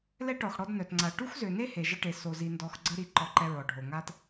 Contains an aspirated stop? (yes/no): no